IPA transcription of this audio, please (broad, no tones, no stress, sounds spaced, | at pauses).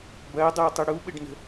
b ɐː dˤ ɐː tˤ ʊ ɽ u ɓ ɘ ɖ n ə̤